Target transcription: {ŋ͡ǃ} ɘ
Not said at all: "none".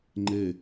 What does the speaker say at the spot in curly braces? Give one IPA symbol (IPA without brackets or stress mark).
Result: ŋ͡ǃ